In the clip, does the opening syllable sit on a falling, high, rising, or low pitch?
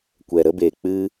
low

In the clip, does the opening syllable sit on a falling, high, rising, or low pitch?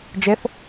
rising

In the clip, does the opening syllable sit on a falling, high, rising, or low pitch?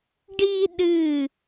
high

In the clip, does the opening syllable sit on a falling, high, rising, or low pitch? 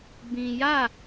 low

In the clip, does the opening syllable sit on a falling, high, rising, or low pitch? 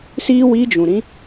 high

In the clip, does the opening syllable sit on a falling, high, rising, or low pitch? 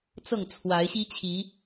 falling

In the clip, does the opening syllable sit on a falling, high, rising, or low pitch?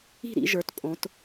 falling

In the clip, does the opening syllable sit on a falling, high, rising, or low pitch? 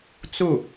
falling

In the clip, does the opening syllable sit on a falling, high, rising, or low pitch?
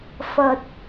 low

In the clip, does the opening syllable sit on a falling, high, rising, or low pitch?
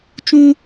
high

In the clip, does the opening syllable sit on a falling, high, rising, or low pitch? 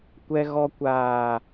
high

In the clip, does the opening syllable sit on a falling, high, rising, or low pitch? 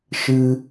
high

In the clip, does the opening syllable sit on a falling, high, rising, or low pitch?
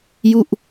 falling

